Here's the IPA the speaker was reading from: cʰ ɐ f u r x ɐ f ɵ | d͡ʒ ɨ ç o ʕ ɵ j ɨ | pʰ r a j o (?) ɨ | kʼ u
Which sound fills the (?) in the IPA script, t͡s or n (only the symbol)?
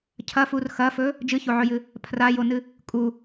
n